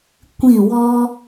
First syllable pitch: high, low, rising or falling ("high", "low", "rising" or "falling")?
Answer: falling